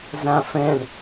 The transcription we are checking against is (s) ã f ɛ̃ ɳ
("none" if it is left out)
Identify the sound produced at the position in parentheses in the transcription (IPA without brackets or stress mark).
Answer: z